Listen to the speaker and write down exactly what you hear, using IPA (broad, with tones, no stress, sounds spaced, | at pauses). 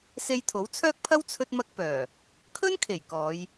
s e˧ j t̪ʰ o˨˥ w t͡sʰ œː˥ k̚ pʰ ɐ˥ w t͡sʰ ɵ˥ t̚ m ɐ˥ k̚ p œː˨˩ | kʰ ɵ˥ n kʰ e˨˩ j k ɔː˨˧ j